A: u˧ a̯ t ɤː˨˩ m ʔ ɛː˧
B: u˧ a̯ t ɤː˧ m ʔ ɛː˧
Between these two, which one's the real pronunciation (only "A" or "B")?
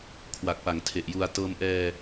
B